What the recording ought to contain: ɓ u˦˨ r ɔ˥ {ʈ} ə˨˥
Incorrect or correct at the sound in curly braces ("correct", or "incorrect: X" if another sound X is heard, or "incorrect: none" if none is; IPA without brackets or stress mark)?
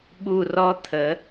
incorrect: t̪ʰ